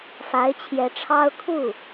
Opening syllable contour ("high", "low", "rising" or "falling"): rising